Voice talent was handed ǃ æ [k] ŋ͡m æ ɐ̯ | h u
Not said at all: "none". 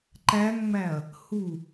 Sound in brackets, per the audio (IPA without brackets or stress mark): ŋ